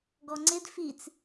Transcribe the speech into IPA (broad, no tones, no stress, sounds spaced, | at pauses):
ɡ ɔ ŋ͡ǀ ɪ d f i t͡s